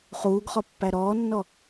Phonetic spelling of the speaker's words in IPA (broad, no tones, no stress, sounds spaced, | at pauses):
χ uː ɡ χ ɔ pː æ ɾ ɔː nː ɔ